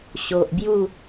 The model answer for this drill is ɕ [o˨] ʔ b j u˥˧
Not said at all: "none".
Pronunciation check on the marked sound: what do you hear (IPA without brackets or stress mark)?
o˨